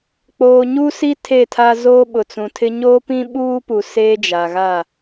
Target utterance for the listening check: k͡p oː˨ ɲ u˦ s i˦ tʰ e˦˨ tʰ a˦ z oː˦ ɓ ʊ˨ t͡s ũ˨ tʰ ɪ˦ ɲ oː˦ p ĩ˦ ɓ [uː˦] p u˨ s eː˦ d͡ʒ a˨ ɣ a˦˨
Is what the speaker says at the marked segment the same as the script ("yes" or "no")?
yes